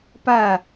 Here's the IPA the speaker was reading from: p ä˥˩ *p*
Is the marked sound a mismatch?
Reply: yes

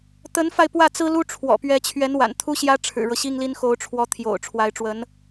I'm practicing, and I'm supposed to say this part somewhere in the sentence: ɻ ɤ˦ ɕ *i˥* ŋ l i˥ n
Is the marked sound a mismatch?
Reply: no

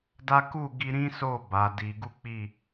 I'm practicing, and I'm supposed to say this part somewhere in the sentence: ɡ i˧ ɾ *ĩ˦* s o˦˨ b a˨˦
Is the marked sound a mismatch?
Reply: no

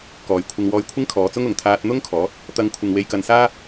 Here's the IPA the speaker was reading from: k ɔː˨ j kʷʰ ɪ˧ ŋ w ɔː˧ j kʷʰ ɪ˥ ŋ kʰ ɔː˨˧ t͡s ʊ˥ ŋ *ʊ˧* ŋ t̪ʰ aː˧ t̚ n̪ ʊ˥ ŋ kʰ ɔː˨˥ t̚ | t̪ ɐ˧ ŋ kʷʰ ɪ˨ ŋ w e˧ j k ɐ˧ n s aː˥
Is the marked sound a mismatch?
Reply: yes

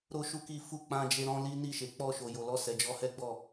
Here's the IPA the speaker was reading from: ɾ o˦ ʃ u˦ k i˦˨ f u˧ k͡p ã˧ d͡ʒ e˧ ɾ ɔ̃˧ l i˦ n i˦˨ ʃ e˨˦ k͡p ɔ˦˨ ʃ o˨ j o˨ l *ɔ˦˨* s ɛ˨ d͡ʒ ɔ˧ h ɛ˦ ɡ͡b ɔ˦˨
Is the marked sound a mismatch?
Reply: yes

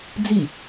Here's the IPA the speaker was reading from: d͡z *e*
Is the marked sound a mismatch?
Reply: yes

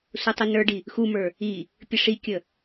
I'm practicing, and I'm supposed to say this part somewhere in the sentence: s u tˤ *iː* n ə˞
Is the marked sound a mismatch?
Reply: yes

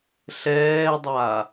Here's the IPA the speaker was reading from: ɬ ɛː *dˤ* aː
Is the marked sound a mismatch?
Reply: no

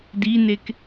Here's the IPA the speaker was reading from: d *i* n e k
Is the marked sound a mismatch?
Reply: no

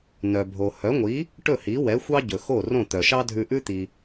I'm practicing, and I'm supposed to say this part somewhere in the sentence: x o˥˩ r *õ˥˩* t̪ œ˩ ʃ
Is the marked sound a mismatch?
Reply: no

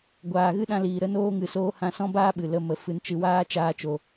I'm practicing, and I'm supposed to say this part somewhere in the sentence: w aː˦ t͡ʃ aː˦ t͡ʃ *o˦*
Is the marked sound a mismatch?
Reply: yes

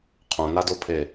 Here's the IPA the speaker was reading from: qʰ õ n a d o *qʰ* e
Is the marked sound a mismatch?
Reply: yes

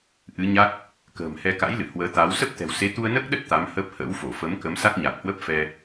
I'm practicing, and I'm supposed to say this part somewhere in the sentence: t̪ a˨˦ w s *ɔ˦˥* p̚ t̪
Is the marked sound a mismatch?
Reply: yes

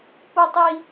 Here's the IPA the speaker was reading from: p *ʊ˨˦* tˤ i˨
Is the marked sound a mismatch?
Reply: yes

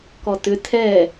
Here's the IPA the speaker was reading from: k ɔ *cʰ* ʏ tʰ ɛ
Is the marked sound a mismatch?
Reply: yes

